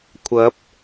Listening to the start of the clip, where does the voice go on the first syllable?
rising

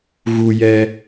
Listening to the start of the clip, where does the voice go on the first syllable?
low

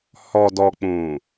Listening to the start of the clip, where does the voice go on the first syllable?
low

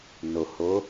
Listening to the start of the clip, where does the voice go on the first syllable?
low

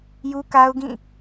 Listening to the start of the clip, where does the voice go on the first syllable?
high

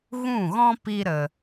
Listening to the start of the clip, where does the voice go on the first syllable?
falling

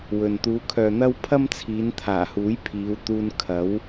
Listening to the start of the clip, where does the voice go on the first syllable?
low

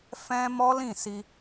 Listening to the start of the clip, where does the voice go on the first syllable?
high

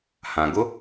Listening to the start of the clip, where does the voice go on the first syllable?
low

